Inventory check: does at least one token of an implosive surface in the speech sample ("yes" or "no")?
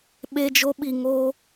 yes